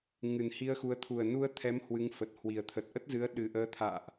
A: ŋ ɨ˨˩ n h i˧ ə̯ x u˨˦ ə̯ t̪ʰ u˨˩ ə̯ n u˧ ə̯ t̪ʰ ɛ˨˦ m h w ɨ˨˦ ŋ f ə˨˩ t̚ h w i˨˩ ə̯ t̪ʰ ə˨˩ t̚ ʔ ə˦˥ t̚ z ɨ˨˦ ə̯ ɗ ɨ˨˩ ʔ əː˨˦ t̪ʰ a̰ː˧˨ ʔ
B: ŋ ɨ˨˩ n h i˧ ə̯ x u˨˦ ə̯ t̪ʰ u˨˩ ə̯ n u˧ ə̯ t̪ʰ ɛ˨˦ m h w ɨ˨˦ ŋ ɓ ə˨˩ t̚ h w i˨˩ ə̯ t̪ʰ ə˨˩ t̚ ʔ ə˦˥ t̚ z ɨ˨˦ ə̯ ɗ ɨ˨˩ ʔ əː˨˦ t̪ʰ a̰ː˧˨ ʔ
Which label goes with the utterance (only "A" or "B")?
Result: A